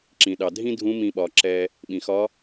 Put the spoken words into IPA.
ǁ ĩ˩ ɗ ɑ˩ dʱ ĩ˥ dʱ ũ˧˥ m ĩ˧ ɓ ɒ˩˧ ǁ ɛ˧ | ɓ ĩ˩ x ɒ˧˥

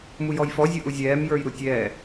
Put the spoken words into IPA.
m u j ɔ j f ɔ zʲ ʊ ʔ u zʲ ɛː m j ə˞ j ɾ u tʲ ɛː

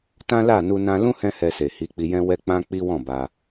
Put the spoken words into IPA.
t ã˦ l a˦˨ n u˧ n ã˧ l ũ˦ h ɛ̃˦ h ɛ˧ s e˨ h i˨˦ k͡p i˧ j ɛ̃˦ w ɛ˦ k͡p ã˦ k͡p i˦ w ɔ̃˦˨ b a˧

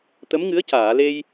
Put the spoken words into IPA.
t̪ ə˧˥ m ŋ ɨ˧˥ ə̯ c aː˨˩˨ l e˧ j

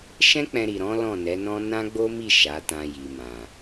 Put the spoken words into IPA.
ʃ ɛ̃˦ k͡p ɛ̃˧ ɾ i˨ ɾ ɔ̃˨˦ l ɔ̃˦˨ n ɛ˨˦ n ɔ̃˦ n ã˦ ɡ͡b o˦ m i˦˨ ʃ a˨˦ t ã˧ j i˨ m ã˨

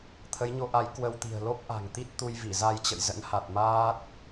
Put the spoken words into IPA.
t̪ʰ ə˨˦ j ɲ o˨˦ ʔ a˨˦ j k w ə˧ w t̪ i̤˨˩ ə̯ l o˦˥ p̚ ʔ a̤˨˩ ŋ t̪ i˦˥ t̚ t̪ u˧ j v i˧˩ z a˧ j t͡ɕ ə̰˧˨ j z ə̰˧˥ n h a˨˩ t̚ m aː˦˥ t̚

